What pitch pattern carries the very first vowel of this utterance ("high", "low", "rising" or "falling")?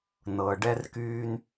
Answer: low